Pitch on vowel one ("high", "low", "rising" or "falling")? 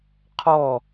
falling